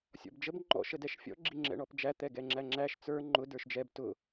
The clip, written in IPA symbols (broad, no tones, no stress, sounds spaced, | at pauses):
sʲ ɔ̰ b d͡ʒ ə b ŋ͡ǃ ɔ̰ ʃ ə d ɛ ʃ fʲ ɔ̰ ɡ͡ǁ i ŋ͡ǁ ɛ̰ ɳ ɔ p d͡ʒ æ t̪ ɛ ɡ ɛ ŋ͡ǁ æ ŋ͡ǁ æ ʃ t͡s ə˞ ŋ͡ǃ ʊ d ə˞ ʃ d͡ʒ ɛ b t ʊ